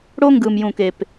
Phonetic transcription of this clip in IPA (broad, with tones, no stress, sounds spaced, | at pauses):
ɽ o˦ ŋ ɡ ɯ˨ m j ũ˨ k e˨ p